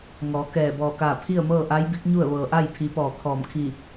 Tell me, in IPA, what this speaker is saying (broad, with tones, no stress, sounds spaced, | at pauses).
ŋ ɔː˩˧ k ɛː˧˩ b ɔː˧˩ k aː˧˩ pʰ i˥˨ ə̯ m ɤː˥˨ ʔ a˧˥ j b i˧˥ k̚ ɲ u˥˨ ə̯ ʋ ɤː˩ ʔ a˥˨ j pʰ i˩˧ p ɔː˧˩ kʰ ɔː˧˩ m kʰ i˧˩